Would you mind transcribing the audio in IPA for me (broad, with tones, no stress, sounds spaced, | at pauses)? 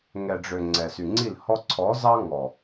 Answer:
ŋ ɛ˨ ɖ͡ʐ ø˨ ŋ͡ǀ ɛ˨ s y˨ ŋ͡ǀ i˦˨ l h ɔ˧ ǀʰ ɔ˨˦ z ɑ˦ ŋ ɔ˨